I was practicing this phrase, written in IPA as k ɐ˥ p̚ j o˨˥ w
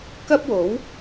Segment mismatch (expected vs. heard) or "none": j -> w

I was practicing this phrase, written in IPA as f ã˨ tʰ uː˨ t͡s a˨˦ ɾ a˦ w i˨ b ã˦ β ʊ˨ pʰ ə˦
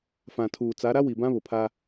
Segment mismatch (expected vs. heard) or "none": ə˦ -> a˦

